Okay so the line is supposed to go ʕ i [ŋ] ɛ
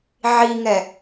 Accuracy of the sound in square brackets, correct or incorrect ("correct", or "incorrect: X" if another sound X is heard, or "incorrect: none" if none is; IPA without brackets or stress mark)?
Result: correct